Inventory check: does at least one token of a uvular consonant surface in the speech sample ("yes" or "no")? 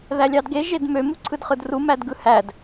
yes